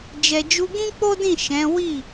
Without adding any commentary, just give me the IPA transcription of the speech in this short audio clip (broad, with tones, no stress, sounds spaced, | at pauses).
d͡ʒ ɛ˨ d͡ʒ u˧ ɡ ĩ˦ k͡p o˦ d ĩ˦˨ ʃ ɛ̃˨˦ w i˦˨